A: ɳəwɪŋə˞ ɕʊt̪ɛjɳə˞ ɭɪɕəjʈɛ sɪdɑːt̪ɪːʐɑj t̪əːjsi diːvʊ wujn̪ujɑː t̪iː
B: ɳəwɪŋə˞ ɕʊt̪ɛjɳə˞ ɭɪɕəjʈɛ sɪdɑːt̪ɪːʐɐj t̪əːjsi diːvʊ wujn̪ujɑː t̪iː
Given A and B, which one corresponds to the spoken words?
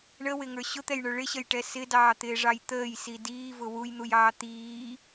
A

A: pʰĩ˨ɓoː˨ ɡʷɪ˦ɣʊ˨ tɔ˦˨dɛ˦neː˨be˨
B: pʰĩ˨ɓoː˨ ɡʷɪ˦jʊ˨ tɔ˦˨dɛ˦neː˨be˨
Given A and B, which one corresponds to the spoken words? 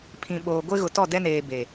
A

